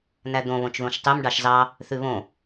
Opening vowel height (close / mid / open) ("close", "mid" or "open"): open